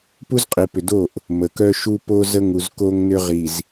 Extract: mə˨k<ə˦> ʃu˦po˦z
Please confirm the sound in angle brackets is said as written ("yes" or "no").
no